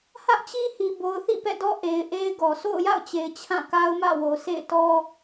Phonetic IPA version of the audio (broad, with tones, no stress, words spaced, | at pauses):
hä˦ʔt͡ɕi˦hi˨ bo˨ʊ̯θḭ˦˨pɛ̰˦˨dɔ˦ ʔe˨ɪ̯ʔe˦ɪ̯ɡɔ˨ sʰo̰˦˨ʊ̯ja̰˦˨ʊ̯t͡ɕe˨ɪ̯ t͡ɕʰã˦˨ka˦ʊ̯mä̰˦˨wo˨ sḛ˦˨ɪ̯tɔ˦